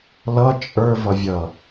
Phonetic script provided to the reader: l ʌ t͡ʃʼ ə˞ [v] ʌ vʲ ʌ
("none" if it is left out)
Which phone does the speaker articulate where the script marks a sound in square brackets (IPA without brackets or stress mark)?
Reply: v